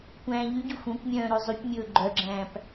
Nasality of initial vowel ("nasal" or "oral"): nasal